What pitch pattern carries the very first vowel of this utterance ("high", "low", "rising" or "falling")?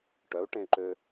rising